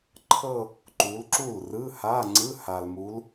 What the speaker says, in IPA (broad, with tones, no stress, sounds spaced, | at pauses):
ǃʰ ɤ˥˧ | ǃ u˨˦ l ǁ u˥˩ l r ɯ˧˥˧ h a˧˥˧ ŋ͡ǀ ɯ˧˥˧ h a˨ l m u˨˦ l